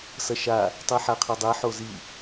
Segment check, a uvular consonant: present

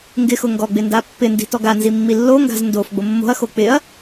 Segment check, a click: absent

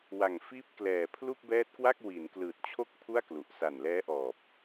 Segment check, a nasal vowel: absent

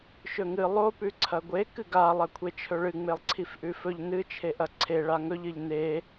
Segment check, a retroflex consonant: present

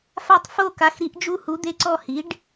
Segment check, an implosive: absent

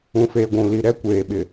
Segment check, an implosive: present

